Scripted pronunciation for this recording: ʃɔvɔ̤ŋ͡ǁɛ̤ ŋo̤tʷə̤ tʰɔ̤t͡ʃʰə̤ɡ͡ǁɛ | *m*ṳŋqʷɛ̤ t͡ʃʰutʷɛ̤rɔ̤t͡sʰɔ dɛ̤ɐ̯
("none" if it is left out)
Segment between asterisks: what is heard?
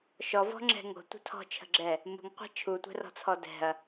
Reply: m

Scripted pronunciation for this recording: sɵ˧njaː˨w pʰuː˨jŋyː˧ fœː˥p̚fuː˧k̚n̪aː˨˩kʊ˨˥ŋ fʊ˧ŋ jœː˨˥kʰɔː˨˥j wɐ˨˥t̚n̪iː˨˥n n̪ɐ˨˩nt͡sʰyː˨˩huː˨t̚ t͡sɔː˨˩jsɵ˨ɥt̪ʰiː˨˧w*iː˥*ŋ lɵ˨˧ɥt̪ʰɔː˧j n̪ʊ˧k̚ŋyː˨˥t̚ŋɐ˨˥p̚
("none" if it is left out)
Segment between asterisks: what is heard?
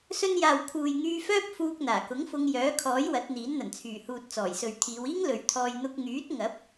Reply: iː˥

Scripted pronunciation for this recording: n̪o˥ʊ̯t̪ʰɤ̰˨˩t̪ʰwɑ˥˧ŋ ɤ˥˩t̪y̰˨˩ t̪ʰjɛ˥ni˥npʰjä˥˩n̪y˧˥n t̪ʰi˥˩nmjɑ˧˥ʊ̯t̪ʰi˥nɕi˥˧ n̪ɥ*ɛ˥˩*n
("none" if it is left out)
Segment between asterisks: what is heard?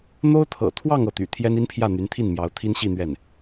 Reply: ɛ˥˩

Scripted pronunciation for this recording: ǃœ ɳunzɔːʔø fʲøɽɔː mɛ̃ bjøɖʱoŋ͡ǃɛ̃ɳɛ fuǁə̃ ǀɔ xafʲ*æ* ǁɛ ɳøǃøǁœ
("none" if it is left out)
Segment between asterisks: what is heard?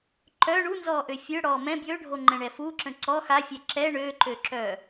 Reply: ɛ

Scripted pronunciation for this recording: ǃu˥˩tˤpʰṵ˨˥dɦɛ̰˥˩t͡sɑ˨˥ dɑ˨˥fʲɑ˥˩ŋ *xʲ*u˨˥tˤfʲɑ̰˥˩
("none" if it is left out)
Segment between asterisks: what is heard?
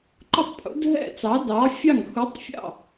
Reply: x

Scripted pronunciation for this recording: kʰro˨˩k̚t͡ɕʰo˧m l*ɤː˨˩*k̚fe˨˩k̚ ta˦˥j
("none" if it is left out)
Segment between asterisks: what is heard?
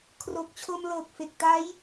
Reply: ɤː˨˩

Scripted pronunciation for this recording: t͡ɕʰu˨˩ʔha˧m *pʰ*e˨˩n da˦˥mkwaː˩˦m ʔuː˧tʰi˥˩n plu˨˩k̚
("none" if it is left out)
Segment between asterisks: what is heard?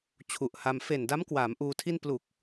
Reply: f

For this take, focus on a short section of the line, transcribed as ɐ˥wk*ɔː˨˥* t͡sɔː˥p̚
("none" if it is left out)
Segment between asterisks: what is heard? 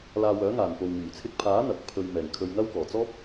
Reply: ɔː˨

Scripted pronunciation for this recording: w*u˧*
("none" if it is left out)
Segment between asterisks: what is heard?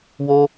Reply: o˧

